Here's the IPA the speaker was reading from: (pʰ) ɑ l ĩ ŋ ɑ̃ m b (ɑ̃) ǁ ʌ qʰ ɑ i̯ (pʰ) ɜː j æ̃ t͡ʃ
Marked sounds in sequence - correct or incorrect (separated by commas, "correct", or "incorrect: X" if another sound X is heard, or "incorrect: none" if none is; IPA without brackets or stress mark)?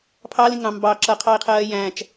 correct, incorrect: ɑ, incorrect: qʰ